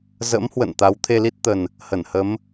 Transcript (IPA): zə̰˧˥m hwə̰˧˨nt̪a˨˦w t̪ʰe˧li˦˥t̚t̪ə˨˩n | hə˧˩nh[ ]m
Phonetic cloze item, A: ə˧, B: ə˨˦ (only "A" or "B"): B